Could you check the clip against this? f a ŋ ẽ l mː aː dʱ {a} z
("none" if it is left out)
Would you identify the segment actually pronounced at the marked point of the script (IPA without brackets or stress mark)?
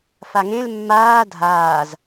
aː